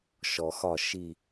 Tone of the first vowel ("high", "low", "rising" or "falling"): low